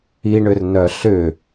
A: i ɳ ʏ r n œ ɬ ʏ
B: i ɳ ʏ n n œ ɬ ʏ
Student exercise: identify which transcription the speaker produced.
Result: A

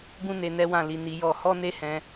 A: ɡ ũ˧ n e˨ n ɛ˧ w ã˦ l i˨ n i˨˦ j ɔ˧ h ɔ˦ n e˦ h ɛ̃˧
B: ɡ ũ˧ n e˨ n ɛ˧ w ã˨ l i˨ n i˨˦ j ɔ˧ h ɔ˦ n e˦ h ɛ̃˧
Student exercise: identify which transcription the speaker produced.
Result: B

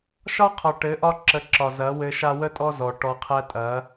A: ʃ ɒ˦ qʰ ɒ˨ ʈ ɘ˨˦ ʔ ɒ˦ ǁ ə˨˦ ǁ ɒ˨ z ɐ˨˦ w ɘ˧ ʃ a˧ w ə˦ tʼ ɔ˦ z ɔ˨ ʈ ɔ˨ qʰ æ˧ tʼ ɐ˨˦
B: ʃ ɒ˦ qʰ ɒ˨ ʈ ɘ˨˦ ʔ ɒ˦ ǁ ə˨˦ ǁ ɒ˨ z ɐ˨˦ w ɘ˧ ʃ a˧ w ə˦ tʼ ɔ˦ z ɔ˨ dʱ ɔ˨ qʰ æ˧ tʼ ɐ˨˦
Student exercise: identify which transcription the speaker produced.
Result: A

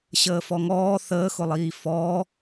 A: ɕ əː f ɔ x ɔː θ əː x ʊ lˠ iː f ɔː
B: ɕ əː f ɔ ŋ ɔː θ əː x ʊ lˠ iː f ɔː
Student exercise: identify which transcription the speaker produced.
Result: B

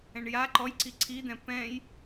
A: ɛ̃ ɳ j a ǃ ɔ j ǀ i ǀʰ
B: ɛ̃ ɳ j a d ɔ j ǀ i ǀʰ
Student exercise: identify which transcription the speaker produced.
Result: A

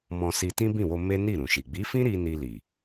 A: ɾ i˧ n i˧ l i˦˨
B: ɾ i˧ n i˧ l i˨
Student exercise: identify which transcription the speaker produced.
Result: B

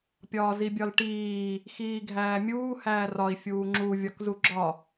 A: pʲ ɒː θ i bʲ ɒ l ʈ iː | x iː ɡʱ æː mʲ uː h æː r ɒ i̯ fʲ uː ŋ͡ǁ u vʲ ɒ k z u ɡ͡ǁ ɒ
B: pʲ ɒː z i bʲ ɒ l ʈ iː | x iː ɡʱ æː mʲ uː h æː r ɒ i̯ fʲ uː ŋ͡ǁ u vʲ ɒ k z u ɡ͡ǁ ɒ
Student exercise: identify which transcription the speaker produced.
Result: B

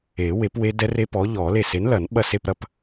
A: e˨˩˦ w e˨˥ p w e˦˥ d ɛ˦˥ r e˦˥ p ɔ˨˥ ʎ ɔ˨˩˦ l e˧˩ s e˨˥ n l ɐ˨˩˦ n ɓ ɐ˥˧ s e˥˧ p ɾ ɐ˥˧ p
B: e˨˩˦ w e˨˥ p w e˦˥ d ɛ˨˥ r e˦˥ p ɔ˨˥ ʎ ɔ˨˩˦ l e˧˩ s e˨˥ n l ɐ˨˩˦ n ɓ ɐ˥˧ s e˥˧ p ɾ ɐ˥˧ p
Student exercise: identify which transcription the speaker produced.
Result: A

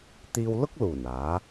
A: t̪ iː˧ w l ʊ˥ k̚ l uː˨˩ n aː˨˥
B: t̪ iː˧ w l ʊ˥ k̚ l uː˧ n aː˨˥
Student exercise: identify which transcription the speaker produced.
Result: A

